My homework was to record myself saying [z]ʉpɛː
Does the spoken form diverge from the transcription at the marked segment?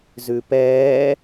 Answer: no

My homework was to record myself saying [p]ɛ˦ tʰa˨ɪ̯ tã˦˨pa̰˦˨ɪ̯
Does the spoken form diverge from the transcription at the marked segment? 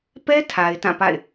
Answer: no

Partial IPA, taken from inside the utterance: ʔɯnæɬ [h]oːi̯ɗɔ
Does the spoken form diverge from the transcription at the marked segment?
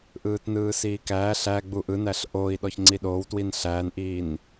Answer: yes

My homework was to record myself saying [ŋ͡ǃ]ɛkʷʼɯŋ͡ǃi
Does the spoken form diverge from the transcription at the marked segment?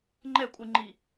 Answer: no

